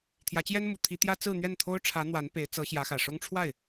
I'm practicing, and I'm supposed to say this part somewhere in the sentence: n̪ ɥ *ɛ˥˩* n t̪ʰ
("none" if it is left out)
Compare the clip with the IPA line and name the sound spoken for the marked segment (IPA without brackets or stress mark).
ɛ˥˩